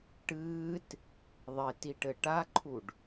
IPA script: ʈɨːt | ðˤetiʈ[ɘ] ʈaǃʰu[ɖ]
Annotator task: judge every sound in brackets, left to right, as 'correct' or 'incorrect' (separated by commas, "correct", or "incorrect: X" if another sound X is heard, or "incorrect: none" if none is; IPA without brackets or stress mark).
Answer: correct, correct